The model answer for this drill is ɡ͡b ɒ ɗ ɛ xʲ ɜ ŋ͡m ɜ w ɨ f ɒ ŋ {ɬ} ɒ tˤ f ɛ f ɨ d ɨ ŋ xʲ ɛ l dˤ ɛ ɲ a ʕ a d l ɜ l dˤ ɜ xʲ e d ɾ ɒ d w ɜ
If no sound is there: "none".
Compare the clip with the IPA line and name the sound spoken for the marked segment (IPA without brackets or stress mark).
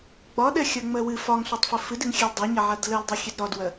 ɬ